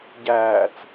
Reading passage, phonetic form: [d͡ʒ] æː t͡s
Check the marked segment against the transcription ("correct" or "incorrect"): incorrect